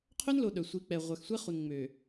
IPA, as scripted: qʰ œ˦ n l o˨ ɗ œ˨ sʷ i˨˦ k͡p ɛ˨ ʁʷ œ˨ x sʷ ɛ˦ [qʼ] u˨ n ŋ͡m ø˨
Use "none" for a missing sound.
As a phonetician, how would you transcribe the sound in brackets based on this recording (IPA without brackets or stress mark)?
χ